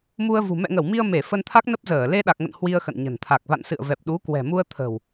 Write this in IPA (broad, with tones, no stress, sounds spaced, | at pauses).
m u˧ ə̯ v ṳ˨˩ m ɛ̰˧˨ ŋ ə˧˩ w m i˧ ə̯ m e˧˩ f ə˧ n t̪ʰ a˦˥ k̚ n ə˦˥ p̚ z əː˧˩ l e˧ ɗ a˨˩ k̚ ŋ ə̰˧˨ n h w i˧ ə̯ x ə̰˧˨ n ɲ ə̤˨˩ n t̪ʰ a˨˩ k̚ v a̰˧˨ n s ɨ̰˧˨ ə̯ v ɛ˨˩ p̚ ɗ u˨˦ k w ɛ̤˨˩ m u˧ ə̯ t̪ʰ ə̤˨˩ w